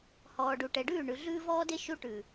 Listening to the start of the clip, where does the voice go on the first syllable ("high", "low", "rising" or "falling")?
low